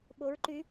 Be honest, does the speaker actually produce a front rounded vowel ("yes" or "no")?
yes